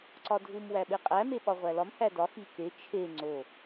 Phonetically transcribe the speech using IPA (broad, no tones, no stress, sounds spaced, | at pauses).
ǀ ɒ dʱ u m w æ ɓ e qʼ æ m e ɓ ɒ ʁʷ æ l ɒ m h æ d ɒ x i k e t͡ʃʰ e ŋ͡ǀ o